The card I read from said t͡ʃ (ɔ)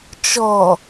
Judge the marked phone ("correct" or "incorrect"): correct